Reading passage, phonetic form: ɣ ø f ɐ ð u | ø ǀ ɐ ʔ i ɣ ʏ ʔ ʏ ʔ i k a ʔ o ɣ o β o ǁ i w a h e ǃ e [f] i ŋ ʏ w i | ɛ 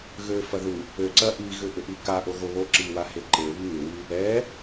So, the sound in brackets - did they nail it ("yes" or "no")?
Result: no